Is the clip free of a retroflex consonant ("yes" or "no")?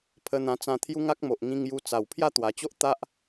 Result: yes